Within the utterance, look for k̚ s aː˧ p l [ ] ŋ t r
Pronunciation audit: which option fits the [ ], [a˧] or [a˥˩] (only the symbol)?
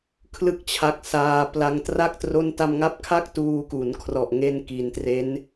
a˧